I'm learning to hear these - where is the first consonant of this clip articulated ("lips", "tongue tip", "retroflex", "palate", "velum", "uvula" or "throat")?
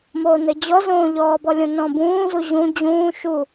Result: lips